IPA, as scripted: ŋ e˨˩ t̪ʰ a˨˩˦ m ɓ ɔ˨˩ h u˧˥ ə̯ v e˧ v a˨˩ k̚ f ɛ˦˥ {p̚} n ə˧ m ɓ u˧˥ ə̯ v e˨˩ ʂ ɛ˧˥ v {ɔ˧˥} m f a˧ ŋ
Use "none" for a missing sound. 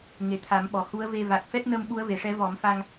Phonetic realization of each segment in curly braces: t̚, ɔ˨˩˦

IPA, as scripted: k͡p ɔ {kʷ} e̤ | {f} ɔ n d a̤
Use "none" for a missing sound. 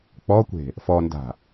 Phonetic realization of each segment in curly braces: kʷ, f

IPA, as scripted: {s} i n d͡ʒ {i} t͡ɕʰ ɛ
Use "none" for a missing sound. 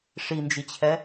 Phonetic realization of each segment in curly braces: ʂ, i

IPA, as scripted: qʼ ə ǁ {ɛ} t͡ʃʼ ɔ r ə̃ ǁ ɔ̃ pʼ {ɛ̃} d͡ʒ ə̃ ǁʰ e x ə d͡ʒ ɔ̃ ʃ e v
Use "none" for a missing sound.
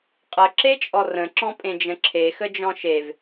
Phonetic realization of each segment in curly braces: e, ẽ

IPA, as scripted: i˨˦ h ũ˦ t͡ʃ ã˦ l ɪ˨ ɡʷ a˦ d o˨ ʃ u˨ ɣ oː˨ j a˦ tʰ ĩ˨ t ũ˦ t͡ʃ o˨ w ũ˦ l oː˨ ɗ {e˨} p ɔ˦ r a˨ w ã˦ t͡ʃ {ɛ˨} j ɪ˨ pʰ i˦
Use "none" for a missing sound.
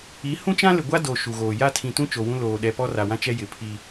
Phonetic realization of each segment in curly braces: ɛ˨, ɛ˦

